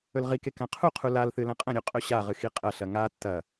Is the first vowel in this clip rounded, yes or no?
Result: yes